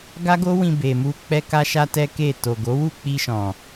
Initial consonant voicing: voiced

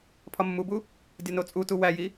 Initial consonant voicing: voiceless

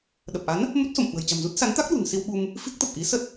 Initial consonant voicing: voiced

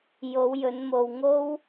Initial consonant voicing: voiced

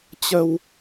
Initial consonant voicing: voiceless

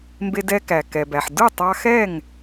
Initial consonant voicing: voiced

